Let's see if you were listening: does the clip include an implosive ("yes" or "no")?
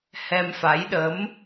yes